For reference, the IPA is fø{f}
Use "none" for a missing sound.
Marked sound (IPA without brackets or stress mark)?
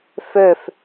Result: f